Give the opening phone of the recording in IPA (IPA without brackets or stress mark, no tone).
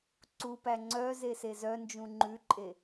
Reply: ǀ